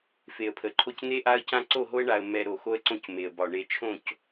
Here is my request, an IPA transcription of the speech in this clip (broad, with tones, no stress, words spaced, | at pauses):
fe˨ə̯pʰə˨ǃʰo˦c n̪e˦ʔa˦ə̯cã˦ ǀo˦˨ɦo˦ə̯ɳa˨ə̯ mɛ˨ ɾo˨xo˦ə̯ǀõ˦c me˨ə̯bɒ˨ ɳe˨t͡ʃʰõ˦˨c